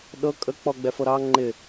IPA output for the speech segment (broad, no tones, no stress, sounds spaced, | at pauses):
ɗ ɤ kʼ ə k͡p ɔ ɡ͡b ɛ f ɤ ɾ ɑ ŋ͡ǃ ɪ